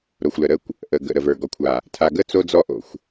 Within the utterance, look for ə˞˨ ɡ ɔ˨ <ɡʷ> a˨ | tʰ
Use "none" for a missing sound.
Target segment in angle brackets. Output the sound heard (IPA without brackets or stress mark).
kʷʰ